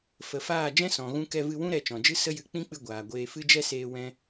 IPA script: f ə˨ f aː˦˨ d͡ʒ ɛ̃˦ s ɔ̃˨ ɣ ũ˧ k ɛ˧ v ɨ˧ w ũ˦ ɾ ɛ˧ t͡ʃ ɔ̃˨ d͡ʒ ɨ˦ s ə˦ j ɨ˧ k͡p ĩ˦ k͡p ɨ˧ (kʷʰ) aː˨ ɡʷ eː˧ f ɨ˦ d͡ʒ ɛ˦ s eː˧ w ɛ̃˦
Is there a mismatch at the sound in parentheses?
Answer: yes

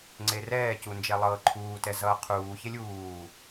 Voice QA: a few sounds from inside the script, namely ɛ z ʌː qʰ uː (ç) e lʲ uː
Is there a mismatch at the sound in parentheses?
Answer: no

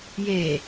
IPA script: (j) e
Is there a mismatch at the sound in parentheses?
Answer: no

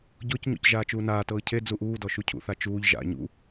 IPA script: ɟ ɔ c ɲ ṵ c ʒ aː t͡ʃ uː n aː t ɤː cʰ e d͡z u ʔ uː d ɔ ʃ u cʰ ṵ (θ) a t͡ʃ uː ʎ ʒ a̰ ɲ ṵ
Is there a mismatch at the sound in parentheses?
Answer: no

